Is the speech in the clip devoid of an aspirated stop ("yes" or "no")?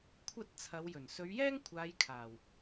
no